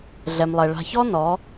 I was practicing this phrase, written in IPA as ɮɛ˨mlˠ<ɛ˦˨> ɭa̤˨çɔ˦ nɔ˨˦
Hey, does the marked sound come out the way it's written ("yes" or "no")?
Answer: no